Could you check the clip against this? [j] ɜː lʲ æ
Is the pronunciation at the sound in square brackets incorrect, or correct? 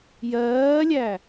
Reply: correct